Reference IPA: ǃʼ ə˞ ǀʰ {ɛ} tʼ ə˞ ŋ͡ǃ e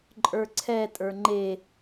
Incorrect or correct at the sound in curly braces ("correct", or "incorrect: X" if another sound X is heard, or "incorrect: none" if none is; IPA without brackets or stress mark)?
correct